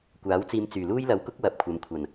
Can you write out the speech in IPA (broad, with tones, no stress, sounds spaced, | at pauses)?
kʷ aː˨˥ w t͡s iː˧ m t͡s yː˨˩ l uː˥ j l ɐ˨˧ w k ʊ˥ k̚ w ɐ˨˥ p̚ kʷʰ ɐ˨ m kʷʰ ɐ˨˩ n